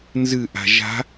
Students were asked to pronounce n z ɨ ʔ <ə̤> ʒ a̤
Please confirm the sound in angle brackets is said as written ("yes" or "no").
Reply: no